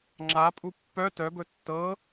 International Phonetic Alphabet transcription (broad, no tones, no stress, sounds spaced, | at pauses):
ŋ͡ǁ a pʼ u pː œ t œ b ɵ tː ɤ